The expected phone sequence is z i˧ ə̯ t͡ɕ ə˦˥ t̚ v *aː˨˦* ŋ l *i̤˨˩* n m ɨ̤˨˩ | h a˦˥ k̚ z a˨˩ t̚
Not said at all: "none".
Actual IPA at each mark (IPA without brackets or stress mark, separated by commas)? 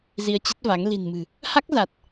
a˨˦, i̤˨˩